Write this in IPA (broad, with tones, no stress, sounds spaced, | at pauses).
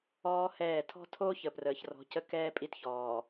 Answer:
ɔː˦ h ɛː˦˨ tʰ ɔ̤˦ tʰ oː˦ ç ə˨ p r əː˨ ç r ɔ̤˨˦ c ə˦ k ɛː˦ pʼ i˦ t ç ɔː˨